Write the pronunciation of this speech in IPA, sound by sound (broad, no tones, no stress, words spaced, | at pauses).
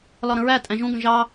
lɒɾə̃ɹæ tʼæ̃ʒũ ɡə̃ʒɑ